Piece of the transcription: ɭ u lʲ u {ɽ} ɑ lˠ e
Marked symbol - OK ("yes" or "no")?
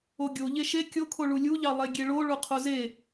no